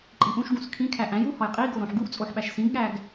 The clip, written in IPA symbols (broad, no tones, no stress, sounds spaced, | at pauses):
ǃʼ i ʔ ũ ʃ ɡ ũ s kʰ ĩ kʰ æ ʔ æ̃ j u h ɒ j qʼ i ɡ o ɾ õ ħ ɡ u ʔ t͡sʼ o ħ ɓ æ ʃ s ĩ ɡ ɠ æ ɡ